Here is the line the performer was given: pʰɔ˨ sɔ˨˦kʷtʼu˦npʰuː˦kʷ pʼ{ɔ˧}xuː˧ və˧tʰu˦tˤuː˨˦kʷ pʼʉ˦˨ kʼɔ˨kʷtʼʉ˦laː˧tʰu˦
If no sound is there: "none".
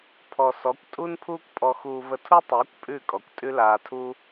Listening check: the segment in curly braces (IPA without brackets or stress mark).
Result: ɔ˧